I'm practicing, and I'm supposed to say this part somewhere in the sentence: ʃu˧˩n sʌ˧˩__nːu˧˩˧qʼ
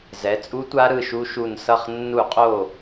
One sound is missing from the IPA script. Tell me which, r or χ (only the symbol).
χ